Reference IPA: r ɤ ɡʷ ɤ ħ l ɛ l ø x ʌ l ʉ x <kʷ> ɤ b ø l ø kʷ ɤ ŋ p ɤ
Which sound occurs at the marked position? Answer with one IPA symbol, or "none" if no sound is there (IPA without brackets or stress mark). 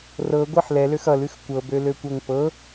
kʷ